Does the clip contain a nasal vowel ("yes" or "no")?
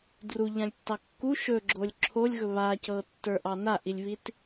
yes